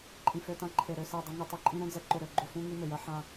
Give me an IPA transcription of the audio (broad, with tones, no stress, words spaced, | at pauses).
ǃʼĩ˨fø˨tã˦ ǃʰe˨ɾø˨sɛ˦˨dˤʊ˦ ŋɯ˨tˤø˨ǃʼĩ˦ ɾõ˦d͡zɛ˨ ǃʊ˦˨ɾø˨ɡ͡ǃʊ˦˨ fũ˦ ŋi˦mø˨jɜ˦ ħã˨